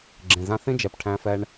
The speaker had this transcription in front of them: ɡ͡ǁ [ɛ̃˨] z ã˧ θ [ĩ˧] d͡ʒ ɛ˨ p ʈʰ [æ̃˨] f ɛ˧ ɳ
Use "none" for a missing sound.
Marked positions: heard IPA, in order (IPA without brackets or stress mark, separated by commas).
ẽ˨, ĩ˧, æ̃˧